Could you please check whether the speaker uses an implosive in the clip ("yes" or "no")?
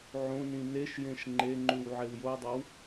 no